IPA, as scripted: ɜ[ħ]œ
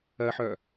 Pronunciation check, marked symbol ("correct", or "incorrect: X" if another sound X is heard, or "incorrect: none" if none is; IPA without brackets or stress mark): correct